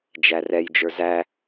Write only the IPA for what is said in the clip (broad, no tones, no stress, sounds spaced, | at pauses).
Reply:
d͡ʒ æ r ɛ j d͡ʒ ə˞ z æ